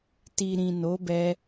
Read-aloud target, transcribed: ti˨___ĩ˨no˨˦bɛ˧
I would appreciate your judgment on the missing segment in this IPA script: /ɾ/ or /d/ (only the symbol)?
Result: ɾ